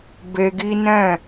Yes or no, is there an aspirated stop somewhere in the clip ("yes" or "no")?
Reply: no